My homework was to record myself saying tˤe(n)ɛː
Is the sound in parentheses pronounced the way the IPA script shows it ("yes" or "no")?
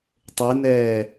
yes